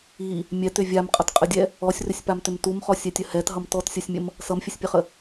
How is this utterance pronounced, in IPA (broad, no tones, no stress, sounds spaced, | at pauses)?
i | mʲ ɛ t ʏ vʲ a m qʼ ʌ t qʼ ə dʲ ɛ | ɔ sʲ r ʏ sʲ p a m t ʏ m t u m χ ɔ sʲ ɛ tʲ ə h ɛ t ɦ ʌ m t ɔ t sʲ ʌ sʲ mʲ ə m | s ʌ m fʲ ə sʲ pʲ ə χ ə